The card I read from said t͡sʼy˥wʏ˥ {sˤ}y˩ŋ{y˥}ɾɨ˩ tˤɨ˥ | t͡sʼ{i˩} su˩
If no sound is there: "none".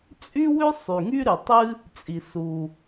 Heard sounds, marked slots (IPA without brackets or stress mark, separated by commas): sˤ, y˥, i˩